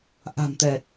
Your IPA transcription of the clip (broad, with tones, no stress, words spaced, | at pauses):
ʔa̤˨˩mt̪ɛ˨˩t̚